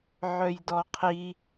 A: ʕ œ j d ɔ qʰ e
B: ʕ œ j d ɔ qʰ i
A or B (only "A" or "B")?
B